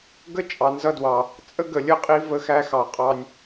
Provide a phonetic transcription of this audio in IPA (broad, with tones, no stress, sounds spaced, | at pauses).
ɡ ə˦ t͡ʃʼ ɑ˨ n z ʌ˦ d w ɑ˨ | t͡sʼ ə˦ ɡ ə˨ lʲ ə˦ qʼ i˦ v ə˦ x æ˦ x ɑ˨ qʼ ɑ˦ nʲ